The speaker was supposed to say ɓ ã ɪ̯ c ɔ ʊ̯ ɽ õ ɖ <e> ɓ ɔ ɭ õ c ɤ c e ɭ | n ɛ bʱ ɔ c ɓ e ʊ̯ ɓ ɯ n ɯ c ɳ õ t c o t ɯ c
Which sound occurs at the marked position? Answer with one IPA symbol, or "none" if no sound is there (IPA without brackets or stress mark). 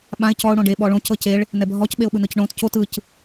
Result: e